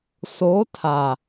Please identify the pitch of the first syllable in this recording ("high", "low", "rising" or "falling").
rising